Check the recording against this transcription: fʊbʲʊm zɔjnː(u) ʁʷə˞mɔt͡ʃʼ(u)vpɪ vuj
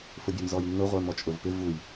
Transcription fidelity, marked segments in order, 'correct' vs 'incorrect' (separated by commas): incorrect, incorrect